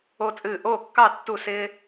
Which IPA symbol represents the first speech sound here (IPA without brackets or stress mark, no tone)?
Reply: o